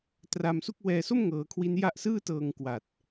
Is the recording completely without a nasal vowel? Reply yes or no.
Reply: yes